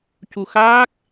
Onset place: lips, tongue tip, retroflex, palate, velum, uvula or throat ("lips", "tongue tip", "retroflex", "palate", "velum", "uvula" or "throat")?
palate